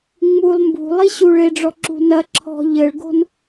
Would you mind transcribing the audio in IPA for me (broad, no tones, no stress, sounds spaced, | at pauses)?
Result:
ŋ͡m u lˠ m b ṳ lˠ i ɕ u ɭ e ɖ͡ʐ ɔ ǁ ṳ n ɐ ǁʰ ɔ̤ ʎ ɘ ɭ ɡ o̤ n